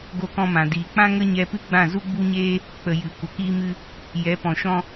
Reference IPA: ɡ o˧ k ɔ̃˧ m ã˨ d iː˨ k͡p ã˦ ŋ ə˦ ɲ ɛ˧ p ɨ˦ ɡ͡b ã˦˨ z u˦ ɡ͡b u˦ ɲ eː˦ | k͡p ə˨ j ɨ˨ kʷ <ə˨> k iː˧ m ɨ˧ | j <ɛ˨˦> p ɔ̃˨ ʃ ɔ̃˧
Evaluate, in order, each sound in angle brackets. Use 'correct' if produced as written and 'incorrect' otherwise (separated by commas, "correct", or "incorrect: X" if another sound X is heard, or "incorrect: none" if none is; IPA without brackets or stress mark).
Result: correct, correct